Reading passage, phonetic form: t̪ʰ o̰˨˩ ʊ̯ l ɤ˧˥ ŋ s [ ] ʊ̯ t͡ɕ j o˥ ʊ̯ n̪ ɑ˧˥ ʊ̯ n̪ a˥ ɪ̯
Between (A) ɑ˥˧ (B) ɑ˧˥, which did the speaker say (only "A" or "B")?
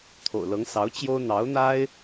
B